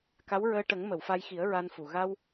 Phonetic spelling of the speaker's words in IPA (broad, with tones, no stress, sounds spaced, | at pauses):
k a˧˥ w ɹ əː˧ ʈ ə˨˩˦ ŋ m ə˨˩˨ w f a˧ j x i˨˩˦ ə̯ ɹ a˧ n f u˨˩ ɣ a˧ w